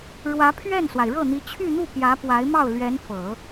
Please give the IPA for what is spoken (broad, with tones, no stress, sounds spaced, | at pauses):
ɻ w ä˧˥ pʰ ɥ ɛ˥˩ n s w a˩ ɪ̯ ɻ ɤ˥˩ n̪ i˧˥ t͡ɕʰ y˥˧ n̪ u˥˩ p j ä˧˥ p w a˧˥ ɪ̯ m ɑ˥˩ ʊ̯ l ɥ ɛ˧˥ n f ɤ˨˩˦